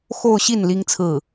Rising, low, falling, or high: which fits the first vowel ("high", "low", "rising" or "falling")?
falling